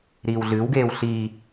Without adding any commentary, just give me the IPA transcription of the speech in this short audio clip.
ɾ iː w ɮ ɨ w ɡ eː w ɬ i

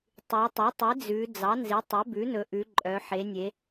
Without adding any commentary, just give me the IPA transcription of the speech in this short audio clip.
tˤ ʉ˩˧ tˤ ɵ˩˥ tˤ e˩˥ d͡z ʉ˩˧ d͡z ɑ˩˥ n z i˩˥ tˤ ɛ˩˥ b ʉ˩˥ n ɵ˩˧ ʔ ʉ˩˧ ǃʼ œ˩˧ ħ e˩˧ nʲ e˩˧

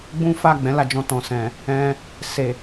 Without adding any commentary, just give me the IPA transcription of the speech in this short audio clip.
ɡ͡b ũ˦ f a˦˨ ɡ͡b ɛ̃˨˦ l a˧ d͡ʒ ɔ̃˧ t ɔ̃˨ s ɛ̃˨ | ɛ̃˧ | s e˨

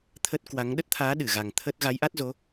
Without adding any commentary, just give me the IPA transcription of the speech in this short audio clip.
t̪ʰ ə˦˥ t̚ k w a˨˦ ŋ ɗ ə˦˥ t̚ t̪ʰ aː˨˦ ɗ ɨ˧˩ ɣ a˨˩ ŋ t̪ʰ ə˦˥ t̚ ɣ a˨˦ j ʔ a˦˥ t̚ z o˨˦

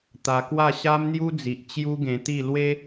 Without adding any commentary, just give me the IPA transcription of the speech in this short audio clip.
t̪ a˧ k w a˥˧ ɕ a˦ m n̪ j u˦ d͡z i˨ ʔ t͡ɕ j u˦ ɡ ẽ˧ t̪ i˥˧ l w e˦

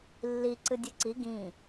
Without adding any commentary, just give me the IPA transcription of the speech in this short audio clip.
lː i ǀ ɨ dʲ ɨ ǀ i ɡ ĩ

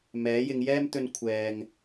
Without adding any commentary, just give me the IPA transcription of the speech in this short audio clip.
m ɛː˨˥ j ɪ˨˧ ŋ j ɛː˥ m t̪ ɵ˧ n kʷʰ ɛː˨ ŋ

